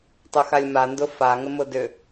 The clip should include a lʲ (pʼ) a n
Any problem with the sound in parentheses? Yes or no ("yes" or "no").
yes